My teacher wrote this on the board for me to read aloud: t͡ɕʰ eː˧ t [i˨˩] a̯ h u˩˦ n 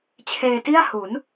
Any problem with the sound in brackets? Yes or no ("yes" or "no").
yes